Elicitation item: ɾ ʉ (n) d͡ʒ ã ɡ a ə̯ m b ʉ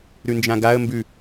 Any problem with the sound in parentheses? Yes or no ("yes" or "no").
no